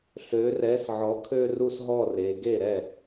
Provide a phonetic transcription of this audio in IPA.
ɬ ø˩˧ r ɛ˩˥ s ʕ ɔ˩˥ kʰ ø˥˧ r u˥˩ s ɦ ɔ˥˩ r e˩˧ ɡ e˥˩ ɾ ɛ˥˩

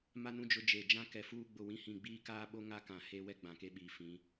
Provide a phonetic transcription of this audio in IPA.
m a˦ n ũ˦ d͡ʒ ʊ˦ d͡ʒ e˦˨ d͡ʒ ã˦ k ɛ˦ f uː˦ ɡ͡b ʊ˦˨ w ĩ˦ h ĩ˦˨ ɡ͡b iː˦ k aː˦ ɓ o˦ ŋ a˦ k ã˨ h e˦ w ɛ˦ ɡ͡b ã˨ k e˦ ɓ iː˨ f ĩ˨˦

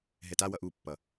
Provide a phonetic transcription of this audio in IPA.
ɦ ɛ t a w ʌ ʔ u pː ʌ

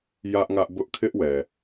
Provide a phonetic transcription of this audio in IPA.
j ä˦ ʔ ŋ ä˦ ʔ b ʊ˦ ʔ kʰ ɪ˦ ʔ w ɛ˨

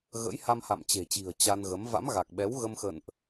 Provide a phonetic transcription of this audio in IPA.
ɣ ə̰˧˥ j h a˧ m h a̰˧˨ m t͡ɕ e̤˨˩ t͡ɕ i̤˨˩ ə̯ t͡ɕ a˧ n ɣ ə˨˦ m v a̰˧˥ m ɣ a˨˩ k̚ ɓ ɛ˨˦ w ɣ ə˧ m x ə̰˧˨ n ʔ

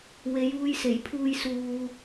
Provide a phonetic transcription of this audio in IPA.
w e˨˧ j uː˧ j s e˨˩ j pʰ uː˧ j s uː˨

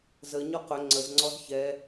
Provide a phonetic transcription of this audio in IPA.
z ə ɲ ɔ q ɵ ŋ͡ǀ ə z ŋ͡ǀ ɔ z ç ɛ

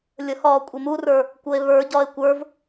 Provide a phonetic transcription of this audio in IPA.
lʲ ə h ɒː kʷʼ e m u r ə˞ | kʷ ɤ e̯ β ə˞ ɟ ɒ e̯ kʷ ə˞ v

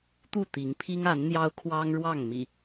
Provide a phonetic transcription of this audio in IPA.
t̪ u˥˨ t̪ i˨˦ ŋ pʰ i˦ ŋ a˨˦ n n̪ j ɑ˦ ʊ̯ kʰ w ɑ˦ ŋ ɻ w ɑ˥˨ ŋ m ḭ˨˩

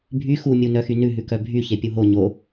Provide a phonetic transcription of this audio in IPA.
bʱ y x u mʲ u n œ x y n ʉ ɦ ʉ k œ bʱ y ç e pʲ u ɦ o ɲ o

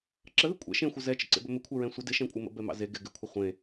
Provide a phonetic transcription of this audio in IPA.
ǁ ə ð ɪ kʷʼ ɛ̰ ʃ ẽ xʷ ə z ɛ t͡ʃ ə̰ ǀ ḛ b ɵ m ɪ kʷʰ ɛ ɹ ɛ̃ sʷ ə d ɪ ʃ ɛ̃ kʷʼ ɪ m ə̰ b ɛ m ɑ̰ z e ɡ ɪ ɡ ɪ kʷʰ ə χʷ ẽ

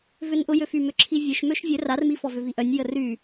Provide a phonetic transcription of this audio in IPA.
v ʏ n ʔ ʊ j ø f y m ʏ ǁʰ i vʲ ø ʃ m ø ʃ vʲ ø r a r m i f ɔ v ʏ v i ʔ œ nʲ j ə r y

